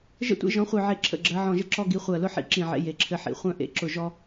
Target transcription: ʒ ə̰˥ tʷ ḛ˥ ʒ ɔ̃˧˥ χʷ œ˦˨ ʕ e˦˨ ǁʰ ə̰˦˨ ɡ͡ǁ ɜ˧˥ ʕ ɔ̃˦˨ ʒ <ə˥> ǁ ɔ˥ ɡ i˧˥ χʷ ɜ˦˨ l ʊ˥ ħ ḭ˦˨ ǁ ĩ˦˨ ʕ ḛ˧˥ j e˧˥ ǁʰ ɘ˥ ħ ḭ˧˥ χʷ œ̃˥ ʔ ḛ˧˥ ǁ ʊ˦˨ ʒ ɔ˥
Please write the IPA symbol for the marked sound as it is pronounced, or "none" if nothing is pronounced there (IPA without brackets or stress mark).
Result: ə˥